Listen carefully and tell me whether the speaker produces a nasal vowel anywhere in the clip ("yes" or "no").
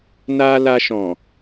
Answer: yes